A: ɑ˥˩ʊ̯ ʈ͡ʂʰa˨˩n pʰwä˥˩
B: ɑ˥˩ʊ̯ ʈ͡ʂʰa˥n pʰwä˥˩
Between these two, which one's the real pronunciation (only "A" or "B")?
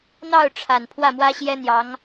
A